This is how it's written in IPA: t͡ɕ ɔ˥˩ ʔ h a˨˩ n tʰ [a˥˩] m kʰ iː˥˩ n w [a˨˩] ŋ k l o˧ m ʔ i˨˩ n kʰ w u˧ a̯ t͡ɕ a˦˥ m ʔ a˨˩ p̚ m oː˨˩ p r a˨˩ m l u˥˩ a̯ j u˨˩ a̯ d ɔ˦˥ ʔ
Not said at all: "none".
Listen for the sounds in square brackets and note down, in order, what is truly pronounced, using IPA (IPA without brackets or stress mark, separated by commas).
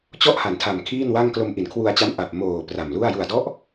a˨˩, a˥˩